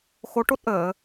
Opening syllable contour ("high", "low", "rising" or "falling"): rising